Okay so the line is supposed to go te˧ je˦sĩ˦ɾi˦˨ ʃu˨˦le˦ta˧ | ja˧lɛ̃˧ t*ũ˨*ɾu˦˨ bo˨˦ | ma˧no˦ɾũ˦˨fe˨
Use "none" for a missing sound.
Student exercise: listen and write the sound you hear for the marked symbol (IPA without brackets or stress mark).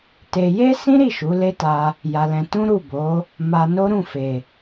ũ˦